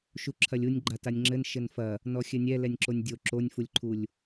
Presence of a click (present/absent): present